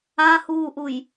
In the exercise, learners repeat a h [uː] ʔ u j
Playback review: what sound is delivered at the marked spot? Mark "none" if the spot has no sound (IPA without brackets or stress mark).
uː